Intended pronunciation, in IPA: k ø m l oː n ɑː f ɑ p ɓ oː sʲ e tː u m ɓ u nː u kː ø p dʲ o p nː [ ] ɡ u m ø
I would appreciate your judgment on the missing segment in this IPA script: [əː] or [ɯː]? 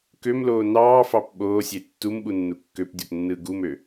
ɯː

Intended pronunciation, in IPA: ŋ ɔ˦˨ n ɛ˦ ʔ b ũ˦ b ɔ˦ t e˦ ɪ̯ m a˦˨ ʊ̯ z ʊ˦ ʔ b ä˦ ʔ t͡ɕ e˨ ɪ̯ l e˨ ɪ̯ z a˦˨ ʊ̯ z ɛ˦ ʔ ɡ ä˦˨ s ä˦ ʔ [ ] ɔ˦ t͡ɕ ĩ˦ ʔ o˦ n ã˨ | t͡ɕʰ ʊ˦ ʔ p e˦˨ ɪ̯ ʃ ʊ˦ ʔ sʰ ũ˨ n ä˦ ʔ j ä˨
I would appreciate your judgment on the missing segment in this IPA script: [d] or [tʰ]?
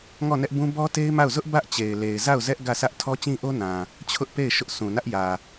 tʰ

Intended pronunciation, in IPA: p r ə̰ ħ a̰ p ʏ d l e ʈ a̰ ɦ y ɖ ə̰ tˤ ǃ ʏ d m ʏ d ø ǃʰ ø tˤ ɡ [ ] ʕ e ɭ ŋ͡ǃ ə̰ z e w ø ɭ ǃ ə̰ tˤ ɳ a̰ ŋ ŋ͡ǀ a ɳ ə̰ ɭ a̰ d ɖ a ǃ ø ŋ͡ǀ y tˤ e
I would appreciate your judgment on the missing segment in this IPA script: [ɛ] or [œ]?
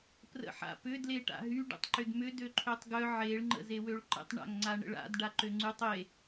œ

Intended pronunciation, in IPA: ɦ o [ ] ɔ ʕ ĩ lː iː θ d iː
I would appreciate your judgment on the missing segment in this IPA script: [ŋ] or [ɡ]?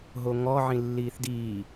ŋ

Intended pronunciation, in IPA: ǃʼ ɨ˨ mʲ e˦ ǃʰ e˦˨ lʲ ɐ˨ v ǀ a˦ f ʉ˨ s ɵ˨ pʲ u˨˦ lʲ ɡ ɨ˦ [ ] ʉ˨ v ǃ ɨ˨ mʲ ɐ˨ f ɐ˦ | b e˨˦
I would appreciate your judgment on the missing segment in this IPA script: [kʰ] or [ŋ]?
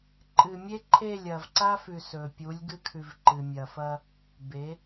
kʰ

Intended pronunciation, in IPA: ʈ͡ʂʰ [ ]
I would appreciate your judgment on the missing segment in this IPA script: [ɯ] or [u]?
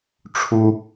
u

